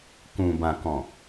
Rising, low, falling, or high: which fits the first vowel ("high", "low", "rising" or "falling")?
low